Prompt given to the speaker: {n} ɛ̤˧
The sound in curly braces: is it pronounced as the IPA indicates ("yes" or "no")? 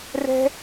no